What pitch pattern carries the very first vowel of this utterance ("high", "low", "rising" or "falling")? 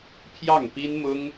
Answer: falling